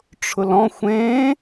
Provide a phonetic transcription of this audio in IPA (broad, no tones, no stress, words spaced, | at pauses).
ʈ͡ʂʰʊlɔ̃ xʷẽ